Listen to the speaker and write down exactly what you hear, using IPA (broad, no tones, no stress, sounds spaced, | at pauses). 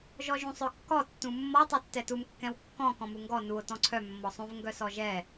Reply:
ʒ ɔ ʒ ũ sˤ œ kː ɔ tː ũ mː ɔ tˤ œ tː ɛ t u m kː ɛ̃ w kː ɔ̃ k ɔ̃ m u ŋ ɡ ɔ n u o̯ t ɔ̃ ǀʰ œ mː ɔ sˤ ũ v ŋ ɡ œ s ɔ ʒ ɛ